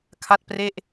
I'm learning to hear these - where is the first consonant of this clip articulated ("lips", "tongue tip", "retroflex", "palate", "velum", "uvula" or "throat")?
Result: velum